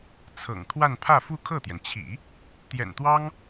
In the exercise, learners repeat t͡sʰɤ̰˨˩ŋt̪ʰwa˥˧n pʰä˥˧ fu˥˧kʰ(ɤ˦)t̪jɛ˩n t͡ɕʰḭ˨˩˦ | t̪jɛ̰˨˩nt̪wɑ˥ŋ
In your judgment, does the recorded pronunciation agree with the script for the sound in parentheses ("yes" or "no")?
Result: no